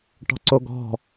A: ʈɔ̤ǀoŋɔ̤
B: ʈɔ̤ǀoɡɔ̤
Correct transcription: B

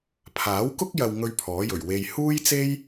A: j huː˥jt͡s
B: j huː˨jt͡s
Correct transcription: A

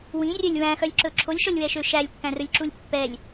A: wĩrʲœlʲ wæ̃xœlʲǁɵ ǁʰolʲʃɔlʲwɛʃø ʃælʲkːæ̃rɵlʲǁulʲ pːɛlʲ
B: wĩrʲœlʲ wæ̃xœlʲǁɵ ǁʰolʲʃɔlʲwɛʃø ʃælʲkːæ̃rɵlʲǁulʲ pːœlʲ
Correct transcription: A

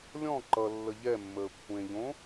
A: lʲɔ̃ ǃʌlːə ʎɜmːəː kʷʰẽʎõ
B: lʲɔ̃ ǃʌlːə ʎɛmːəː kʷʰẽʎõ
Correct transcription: B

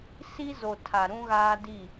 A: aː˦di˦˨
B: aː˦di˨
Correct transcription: A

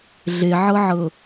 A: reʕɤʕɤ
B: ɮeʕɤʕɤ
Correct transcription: B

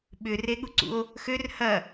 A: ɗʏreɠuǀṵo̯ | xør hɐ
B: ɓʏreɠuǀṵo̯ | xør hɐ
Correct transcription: B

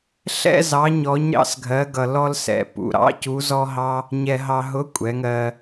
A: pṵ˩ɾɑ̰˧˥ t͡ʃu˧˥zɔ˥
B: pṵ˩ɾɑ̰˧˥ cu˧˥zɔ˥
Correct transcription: B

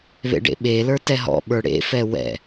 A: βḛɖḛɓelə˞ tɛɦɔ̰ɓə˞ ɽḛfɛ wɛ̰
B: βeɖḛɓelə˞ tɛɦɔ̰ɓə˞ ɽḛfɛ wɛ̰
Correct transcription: A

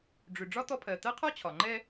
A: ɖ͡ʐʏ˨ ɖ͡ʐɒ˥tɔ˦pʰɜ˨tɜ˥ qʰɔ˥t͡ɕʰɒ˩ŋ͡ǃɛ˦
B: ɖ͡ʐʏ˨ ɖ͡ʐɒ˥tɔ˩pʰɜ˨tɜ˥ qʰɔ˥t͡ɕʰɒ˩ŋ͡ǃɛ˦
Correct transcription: A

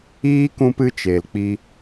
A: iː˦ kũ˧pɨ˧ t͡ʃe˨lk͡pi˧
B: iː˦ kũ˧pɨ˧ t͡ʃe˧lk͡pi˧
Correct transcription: A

